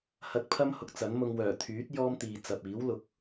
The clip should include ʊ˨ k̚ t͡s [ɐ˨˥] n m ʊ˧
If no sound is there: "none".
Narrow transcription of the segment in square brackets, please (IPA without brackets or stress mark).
ɐ˨˥